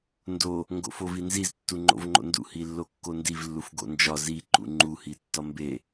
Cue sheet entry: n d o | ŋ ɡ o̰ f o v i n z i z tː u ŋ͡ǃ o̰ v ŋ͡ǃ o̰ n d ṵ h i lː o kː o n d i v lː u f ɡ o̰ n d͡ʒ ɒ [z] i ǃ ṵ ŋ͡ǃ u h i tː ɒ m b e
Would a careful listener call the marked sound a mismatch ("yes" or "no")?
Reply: no